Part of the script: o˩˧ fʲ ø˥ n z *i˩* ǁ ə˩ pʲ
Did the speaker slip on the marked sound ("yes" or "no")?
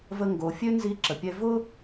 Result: yes